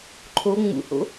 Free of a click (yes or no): no